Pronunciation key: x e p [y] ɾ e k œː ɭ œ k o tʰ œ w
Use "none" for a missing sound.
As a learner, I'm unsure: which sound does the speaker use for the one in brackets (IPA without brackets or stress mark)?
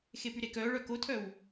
y